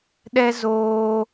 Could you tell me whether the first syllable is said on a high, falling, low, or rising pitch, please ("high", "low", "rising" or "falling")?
high